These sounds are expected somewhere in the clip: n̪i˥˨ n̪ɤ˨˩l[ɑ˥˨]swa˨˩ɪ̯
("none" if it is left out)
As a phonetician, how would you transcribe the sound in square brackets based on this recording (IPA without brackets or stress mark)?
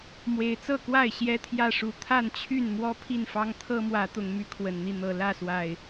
ä˥˨